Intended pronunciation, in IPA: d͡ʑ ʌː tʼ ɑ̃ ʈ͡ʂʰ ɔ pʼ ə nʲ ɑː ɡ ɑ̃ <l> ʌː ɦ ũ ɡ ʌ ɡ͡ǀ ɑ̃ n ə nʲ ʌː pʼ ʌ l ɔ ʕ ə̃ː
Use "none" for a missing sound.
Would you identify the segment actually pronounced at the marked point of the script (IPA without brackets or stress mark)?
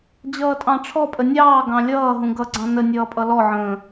lʲ